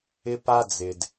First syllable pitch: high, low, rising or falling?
high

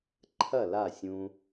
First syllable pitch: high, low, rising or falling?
falling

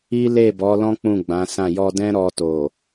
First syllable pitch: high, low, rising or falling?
high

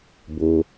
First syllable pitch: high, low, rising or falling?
high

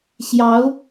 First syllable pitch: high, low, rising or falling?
rising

